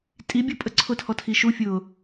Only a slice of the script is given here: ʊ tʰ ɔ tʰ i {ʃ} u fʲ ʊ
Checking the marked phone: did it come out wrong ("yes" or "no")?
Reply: no